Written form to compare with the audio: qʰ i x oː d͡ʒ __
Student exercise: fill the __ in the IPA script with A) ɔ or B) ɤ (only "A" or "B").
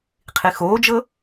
B